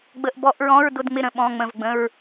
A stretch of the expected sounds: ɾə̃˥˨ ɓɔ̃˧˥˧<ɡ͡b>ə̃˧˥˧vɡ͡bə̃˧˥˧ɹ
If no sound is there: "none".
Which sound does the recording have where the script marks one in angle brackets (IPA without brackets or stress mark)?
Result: ŋ͡m